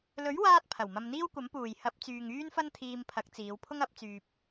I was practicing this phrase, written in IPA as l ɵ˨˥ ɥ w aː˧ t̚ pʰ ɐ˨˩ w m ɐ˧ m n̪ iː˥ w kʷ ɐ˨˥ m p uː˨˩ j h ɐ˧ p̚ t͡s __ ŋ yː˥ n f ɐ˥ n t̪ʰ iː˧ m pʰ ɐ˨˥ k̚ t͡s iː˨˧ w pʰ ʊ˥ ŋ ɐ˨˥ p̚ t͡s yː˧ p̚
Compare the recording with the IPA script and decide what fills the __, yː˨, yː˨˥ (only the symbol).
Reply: yː˨